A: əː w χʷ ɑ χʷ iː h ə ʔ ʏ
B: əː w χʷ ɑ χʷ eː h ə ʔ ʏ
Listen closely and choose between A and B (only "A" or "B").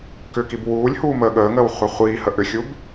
A